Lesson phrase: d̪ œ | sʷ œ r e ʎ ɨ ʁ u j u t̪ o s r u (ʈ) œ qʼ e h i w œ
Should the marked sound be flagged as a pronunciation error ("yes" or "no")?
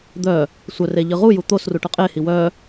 no